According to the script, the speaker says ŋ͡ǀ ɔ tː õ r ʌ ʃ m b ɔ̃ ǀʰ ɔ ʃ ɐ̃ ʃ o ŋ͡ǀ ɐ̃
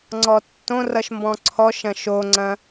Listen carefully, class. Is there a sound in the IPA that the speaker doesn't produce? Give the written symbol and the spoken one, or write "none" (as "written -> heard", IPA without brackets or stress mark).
none